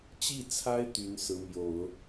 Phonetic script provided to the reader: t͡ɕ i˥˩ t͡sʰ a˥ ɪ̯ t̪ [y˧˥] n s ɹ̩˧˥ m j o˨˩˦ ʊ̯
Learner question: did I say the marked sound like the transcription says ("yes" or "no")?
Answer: yes